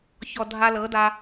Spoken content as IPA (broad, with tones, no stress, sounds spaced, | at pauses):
ç ɔ˨ dʱ a˧ l ɤ˨˦ d a˧